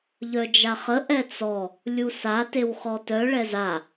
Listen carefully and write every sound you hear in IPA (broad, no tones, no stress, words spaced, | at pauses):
ʎœd͡ʒaχə ʔɛt͡sɔ | lʲusa tewχɔtœ ɭɛza